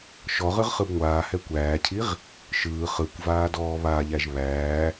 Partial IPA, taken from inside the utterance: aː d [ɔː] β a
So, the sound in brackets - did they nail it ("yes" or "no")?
yes